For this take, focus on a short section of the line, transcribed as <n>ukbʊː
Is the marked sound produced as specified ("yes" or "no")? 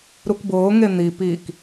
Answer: no